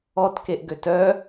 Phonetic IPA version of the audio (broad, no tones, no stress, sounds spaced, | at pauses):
ɔ t k e ʔ ɡ ø t œ